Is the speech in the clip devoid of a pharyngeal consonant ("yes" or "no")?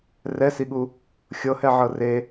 no